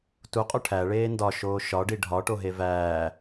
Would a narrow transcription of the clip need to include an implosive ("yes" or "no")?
no